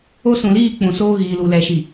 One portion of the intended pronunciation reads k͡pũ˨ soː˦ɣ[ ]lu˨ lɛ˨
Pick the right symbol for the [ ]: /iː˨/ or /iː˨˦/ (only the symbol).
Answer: iː˨